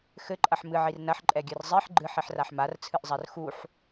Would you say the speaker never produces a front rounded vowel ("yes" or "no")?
yes